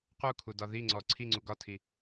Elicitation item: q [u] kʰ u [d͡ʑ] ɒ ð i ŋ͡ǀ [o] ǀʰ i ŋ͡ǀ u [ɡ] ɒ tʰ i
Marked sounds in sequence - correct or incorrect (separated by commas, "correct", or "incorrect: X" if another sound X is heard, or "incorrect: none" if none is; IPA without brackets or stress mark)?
correct, incorrect: d, incorrect: ɔ, correct